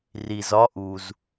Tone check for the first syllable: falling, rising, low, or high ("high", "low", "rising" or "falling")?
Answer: low